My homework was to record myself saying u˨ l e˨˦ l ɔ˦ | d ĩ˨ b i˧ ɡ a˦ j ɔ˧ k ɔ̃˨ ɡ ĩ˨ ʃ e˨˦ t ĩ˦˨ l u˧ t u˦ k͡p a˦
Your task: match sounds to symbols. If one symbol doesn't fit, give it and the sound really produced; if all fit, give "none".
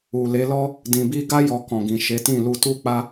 none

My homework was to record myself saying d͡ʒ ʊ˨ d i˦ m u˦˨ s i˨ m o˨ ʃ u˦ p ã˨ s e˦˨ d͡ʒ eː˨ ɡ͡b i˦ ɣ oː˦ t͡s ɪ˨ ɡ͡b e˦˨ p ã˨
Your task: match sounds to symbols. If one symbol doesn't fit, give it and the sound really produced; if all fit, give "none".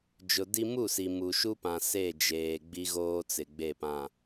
o˨ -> u˨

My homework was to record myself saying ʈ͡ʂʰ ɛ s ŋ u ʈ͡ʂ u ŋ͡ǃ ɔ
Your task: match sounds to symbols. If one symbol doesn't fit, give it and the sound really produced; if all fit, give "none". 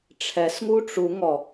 ŋ͡ǃ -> ŋ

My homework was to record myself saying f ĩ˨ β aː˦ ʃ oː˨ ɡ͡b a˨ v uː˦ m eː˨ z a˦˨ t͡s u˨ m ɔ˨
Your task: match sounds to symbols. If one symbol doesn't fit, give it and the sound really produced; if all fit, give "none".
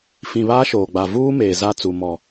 none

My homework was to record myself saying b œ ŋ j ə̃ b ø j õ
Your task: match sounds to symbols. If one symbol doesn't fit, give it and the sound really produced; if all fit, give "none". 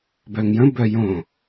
ø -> œ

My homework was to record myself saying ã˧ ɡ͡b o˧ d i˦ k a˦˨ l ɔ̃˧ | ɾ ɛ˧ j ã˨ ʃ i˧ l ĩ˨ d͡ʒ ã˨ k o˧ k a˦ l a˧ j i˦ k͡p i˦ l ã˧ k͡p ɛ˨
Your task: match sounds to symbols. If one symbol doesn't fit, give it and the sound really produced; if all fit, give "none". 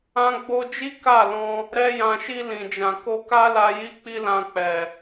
d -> d͡ʒ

